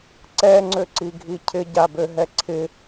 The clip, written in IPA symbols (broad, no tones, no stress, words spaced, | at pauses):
ǀɛŋ͡ǀøǀiɡʱi cʰɪɟabøɦɛ ǀʰɪ